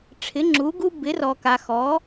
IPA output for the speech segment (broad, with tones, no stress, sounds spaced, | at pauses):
ʈ͡ʂʰ ɪ˩˧ ŋ͡ǁ u˩˧ ɡ u˧ b ɪ˩˧ r ɔ˩ k a˩ x ɔ˩˧